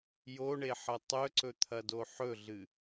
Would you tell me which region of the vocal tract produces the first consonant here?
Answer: palate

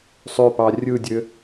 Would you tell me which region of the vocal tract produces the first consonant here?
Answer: tongue tip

